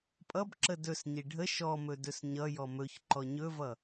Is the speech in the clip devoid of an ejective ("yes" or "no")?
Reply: no